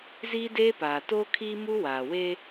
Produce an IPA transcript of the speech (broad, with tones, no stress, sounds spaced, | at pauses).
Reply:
z iː˦ d eː˦ p aː˨ t oː˦ kʰ iː˦ m u˦ w aː˨ w e˦